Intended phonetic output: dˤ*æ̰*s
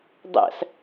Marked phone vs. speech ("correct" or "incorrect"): correct